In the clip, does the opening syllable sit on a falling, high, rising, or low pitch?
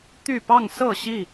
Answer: falling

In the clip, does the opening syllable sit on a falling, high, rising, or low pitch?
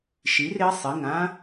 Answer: rising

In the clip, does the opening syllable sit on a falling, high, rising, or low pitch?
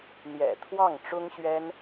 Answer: low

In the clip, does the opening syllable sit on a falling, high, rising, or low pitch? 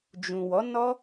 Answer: low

